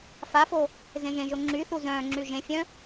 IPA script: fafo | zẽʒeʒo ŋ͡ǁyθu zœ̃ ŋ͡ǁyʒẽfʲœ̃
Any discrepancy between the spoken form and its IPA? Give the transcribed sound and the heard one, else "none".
e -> ẽ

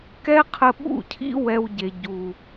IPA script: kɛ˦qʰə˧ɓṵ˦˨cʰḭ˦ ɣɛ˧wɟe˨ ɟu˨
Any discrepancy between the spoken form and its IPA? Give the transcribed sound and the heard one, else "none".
ɣ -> w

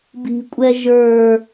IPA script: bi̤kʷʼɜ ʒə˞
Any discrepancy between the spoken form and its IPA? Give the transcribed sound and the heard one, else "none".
ɜ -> ɛ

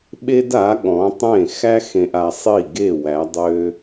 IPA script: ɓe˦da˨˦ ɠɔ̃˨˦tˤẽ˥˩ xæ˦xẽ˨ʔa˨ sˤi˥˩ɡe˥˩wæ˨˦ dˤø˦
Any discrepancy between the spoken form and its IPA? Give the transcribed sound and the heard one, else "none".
none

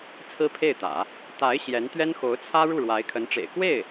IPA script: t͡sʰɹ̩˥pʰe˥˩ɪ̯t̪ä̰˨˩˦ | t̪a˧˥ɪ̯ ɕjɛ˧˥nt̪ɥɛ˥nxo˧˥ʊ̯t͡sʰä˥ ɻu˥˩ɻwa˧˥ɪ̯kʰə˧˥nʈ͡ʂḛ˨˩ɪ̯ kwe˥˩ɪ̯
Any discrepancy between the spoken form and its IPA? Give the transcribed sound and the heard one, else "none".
none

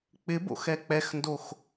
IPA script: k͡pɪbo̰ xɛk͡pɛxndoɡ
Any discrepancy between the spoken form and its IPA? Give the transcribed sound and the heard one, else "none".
ɡ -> x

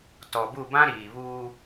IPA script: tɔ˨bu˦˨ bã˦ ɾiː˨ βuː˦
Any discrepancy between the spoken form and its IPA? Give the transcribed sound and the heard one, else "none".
none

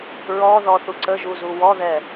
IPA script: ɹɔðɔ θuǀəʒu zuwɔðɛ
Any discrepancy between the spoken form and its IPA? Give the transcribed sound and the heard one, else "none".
none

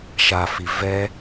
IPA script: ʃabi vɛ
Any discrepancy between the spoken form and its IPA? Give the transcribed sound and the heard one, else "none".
b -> f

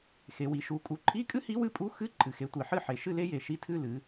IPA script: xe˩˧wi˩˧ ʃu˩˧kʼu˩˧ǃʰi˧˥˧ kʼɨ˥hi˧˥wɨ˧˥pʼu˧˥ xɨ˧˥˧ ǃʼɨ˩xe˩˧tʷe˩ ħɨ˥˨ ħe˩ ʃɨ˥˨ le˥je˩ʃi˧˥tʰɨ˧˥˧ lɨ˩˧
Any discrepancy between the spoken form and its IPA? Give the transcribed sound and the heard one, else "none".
none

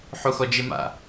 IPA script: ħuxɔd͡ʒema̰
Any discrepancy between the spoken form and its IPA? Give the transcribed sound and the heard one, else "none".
none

